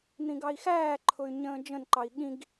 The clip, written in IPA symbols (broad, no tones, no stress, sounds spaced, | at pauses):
n̪ ĩ ɡ ɑ i̯ x æː ǃʰ ʊ y̯ ɲ ə̃ː d͡ʒ ə̃ n ǃ ɑ i̯ ɠ ĩ ɡ